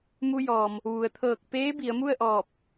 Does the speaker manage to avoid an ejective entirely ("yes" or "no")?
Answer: yes